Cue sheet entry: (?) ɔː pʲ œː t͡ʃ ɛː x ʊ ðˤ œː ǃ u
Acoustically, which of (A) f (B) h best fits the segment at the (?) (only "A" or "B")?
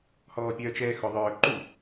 B